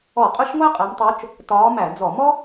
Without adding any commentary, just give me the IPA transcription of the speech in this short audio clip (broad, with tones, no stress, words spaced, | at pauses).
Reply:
ɔ˧˩˧qʼʊ˥˧ʃ ŋʷæ˥qʼæ˨˦mtˤu˨˦t͡ʃ | tɒː˨˦ mæ˧˩˧d͡zɔ˧˩˧ mɔ˥